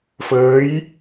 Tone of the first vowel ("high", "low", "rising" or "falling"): rising